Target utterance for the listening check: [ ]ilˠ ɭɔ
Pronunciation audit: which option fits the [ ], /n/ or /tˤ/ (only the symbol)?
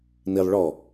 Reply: n